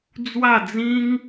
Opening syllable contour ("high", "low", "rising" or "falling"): falling